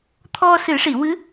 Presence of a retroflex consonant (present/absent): present